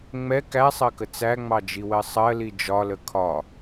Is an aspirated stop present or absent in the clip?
present